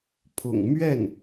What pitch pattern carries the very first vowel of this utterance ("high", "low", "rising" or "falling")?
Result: low